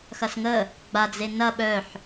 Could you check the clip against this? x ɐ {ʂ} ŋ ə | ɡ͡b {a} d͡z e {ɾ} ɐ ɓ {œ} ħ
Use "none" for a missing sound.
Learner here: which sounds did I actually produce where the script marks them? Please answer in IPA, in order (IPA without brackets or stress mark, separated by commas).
s, a, n, œ